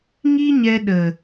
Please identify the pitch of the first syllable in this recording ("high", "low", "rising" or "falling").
high